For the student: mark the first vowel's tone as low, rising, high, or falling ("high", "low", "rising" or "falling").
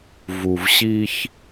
low